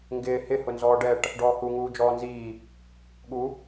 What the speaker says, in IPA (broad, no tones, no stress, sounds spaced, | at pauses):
ŋ ɡ ɪː h ɪ h ʊ n z ɔː ɖ ɛ ʈ | ɖ ɔː h u ŋ uː d͡ʒ ɔː n z iː | ɠ u